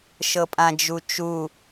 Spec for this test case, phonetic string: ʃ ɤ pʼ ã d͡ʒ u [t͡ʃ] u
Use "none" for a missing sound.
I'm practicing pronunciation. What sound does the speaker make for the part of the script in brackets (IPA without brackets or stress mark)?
t͡ʃ